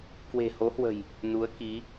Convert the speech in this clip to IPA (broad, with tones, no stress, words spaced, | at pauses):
kwe̤˨˩ho˨˦hwə̤˨˩j | nu˨˦ə̯ki˨˦